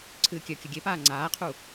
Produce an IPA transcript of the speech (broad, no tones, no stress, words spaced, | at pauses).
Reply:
ǀʰɨːkʲœkʲə ɡʲepaː ŋ͡ǀaːqʰu